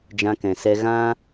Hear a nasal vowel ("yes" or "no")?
yes